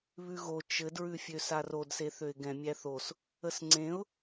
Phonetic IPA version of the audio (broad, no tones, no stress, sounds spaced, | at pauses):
β ʉ ɣ o t͡ʃ ɘ d ɹ ʉ fʲ ø s a r o d s e θ ø ɪ̯ ɡ ɛ̃ mʲ æ θ o s | ə s ŋ͡ǀ ẽ ʊ̯